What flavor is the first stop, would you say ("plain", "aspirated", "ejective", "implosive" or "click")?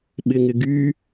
implosive